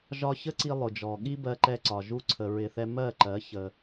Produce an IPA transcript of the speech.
ʒɒ˧çə˦ǀi˧ lˠʊ˨d͡ʒɔ˨ ɠi˦bɜ˧ǃɛ˧ǀɒ˨ ʒu˦ǀʰə˧ɹɪ˧θɛ˦ mɜ˦˨ǃɜ˨˦ çə˧

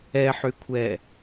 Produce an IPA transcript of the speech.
ɛħykʷʰɛ

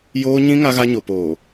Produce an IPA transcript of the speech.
joː˦ ɲĩ˦ ŋa˦ɣa˦ ɲo˨poː˨

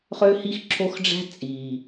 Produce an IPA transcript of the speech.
χø˦hi˦xǁʰo˦xɖ͡ʐæ̤˦ t͡sʼi˨

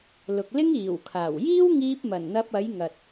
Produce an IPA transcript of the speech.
lʊ˨k̚lɪ˥ŋiː˨˩wkʰaː˨˩w jiː˥wŋiː˧p̚ mɐ˨˩nn̪ɐ˧p̚ɐ˨˥j ŋɐ˨t̚

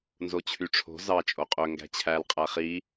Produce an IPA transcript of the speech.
nzot͡ɕʰyʈ͡ʂʰo̤ zɑ t͡ʃʼoqʼø ŋɡæ̤t͡ɕʰæl qʼæχi

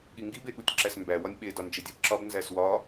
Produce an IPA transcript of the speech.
ɠiŋɡi beɠutʲǁæsmbæ wɒnʲɓe dɒnd͡ʒedʲæbǁɒb nzæswɒ

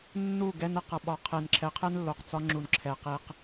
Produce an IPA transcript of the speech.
nːu˦˨ɡɛ˧n ə˦˨q ʌ˨ɓɒ˨ qʰe˨nǁʰɛ˨˦qʰɛ˦n lːo˨qt͡sɒ˧ ŋ͡ǁu˨nǁʰɛ˨qi˧q

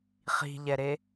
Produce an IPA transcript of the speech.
χi̤ʎɛɾe

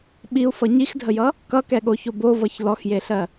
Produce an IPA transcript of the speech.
ɓiu̯fʌ ɲixdʱəjʌ | kʌkɛɠoço bovʌç lɔxjeɬɜ

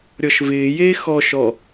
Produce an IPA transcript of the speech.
ɾʲɔʃvɪːjeː xɔ ʃɔ

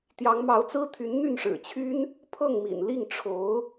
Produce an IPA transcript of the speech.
t̪jɑ˧˥ŋmɑ˧˥ʊ̯t͡sɹ̩˥t̪ʰy˧˥n n̪y˥˩nʂɻ̩˨˩t͡ɕʰy˥n | pʰɤ˥˩ŋmḭ˨˩nli˥˩ŋ ʈ͡ʂʰo˧˥ʊ̯

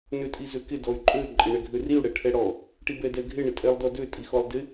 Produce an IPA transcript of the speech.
nøtʼizøkɪ dɔy̯ǃʼø ǃʼɪɳɛɡʱøriu̯ ɽɛʈʰɛɽɔ | ʈibɛdɛɡʱɪ ɳɪtʼɛlˠdɔdø tʼixɔlˠdɪ

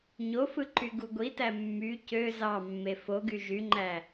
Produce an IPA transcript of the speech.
ɲofɯǃy ɡuɡʷitæ mːy cø zɑmːe foɡy ʒyŋ͡ǃæ

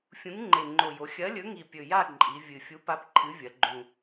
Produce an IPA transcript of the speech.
fʲũ˨˥ŋŋ͡ǃe˨˩ŋ͡ǃo˨˩jo˩˧ xʲɐ˨˥lʲɵ˨˥ŋi˨˩ pʲɵ˨˩ja˥˧ ǃʼi˩˧ vʲɨ˨˩ fʲu˨˥pa˨˥p ǃʰɨ˨˥vʲɐ˩˧ɡ͡ǃũ˨˩

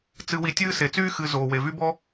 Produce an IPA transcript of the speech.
t͡sɨ˨wi˨tʲɨː˦ se˩t͡syː˥ xɨ˨ zoː˩we˩vy˦bɔ˥

